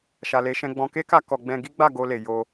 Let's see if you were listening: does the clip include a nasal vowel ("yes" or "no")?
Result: yes